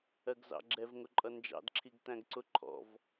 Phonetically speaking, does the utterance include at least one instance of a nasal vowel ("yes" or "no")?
yes